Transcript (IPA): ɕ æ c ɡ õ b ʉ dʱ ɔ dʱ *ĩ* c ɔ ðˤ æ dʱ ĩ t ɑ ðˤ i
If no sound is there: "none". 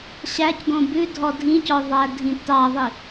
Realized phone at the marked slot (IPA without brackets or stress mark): ĩ